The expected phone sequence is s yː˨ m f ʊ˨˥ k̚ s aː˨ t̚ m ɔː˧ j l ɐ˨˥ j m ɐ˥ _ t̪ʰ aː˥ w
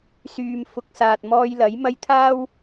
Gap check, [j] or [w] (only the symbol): j